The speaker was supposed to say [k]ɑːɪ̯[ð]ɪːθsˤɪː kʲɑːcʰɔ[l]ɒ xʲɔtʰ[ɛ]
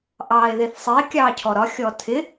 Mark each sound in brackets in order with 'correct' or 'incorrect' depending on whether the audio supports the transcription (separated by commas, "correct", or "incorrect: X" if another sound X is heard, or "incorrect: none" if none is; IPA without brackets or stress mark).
incorrect: ʔ, correct, incorrect: ɾ, incorrect: ɪ